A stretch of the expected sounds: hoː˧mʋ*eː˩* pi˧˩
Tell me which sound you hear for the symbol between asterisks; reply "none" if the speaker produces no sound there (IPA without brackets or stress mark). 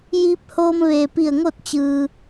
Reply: eː˩